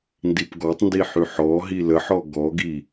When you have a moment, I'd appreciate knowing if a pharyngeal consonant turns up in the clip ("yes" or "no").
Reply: yes